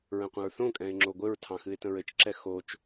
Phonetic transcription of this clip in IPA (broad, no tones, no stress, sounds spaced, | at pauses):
ɹ ə̃ qʷ ə̃ ɹ θ õ kʼ ɛ̃ ɪ̯ ŋ͡ǁ o ɡʷ ɘ ɹ tʰ ɑ̃ x ɨ ɪ̯ t ə̃ ɹ ɘ t͡ʃ ǁ ɛ x o t͡ʃ